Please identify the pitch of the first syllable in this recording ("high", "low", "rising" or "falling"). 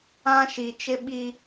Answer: high